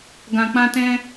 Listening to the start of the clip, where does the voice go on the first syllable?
low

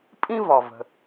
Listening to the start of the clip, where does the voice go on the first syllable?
high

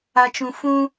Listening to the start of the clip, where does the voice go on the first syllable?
low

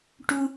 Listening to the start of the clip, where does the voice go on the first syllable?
low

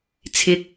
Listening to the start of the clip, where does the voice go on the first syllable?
rising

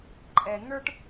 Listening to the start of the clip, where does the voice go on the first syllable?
low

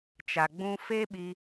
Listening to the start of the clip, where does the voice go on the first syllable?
low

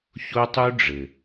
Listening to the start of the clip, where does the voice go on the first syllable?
high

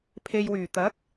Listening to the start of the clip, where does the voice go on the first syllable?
low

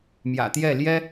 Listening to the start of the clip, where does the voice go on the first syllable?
low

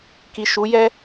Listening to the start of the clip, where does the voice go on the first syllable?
low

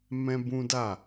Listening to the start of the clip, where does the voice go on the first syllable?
high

